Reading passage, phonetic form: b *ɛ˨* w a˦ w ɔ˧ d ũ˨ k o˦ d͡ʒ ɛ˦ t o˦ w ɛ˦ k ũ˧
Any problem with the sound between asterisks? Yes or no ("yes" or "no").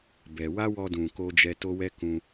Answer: no